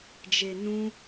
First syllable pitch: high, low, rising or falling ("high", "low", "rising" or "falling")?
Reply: low